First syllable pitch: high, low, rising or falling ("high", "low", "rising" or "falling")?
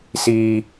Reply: low